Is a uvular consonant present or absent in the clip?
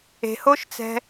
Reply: absent